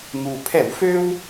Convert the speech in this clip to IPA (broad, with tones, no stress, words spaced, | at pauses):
ŋu˨˩pʰɛ˧˩˧w fø˦w